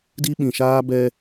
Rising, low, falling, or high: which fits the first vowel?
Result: high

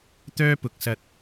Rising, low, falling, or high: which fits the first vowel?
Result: high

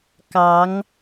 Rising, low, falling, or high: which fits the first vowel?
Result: rising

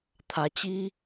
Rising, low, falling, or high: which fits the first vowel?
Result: rising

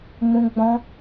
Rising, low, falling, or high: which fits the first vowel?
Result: high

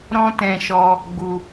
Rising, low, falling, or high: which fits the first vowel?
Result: high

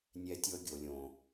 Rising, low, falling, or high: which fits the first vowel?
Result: high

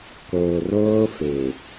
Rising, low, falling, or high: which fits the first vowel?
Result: low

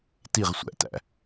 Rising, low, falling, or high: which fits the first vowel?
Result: falling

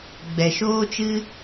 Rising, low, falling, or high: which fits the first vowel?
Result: low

